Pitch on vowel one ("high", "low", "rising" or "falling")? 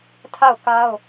falling